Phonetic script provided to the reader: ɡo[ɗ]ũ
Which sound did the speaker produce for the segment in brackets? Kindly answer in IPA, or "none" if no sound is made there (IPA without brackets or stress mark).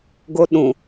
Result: ɗ